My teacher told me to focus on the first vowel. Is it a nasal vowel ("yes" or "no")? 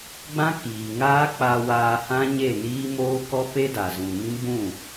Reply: yes